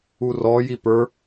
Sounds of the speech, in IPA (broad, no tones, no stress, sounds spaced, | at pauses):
u r ɔ j i p ə˞